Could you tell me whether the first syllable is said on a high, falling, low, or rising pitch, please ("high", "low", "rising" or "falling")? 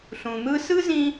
low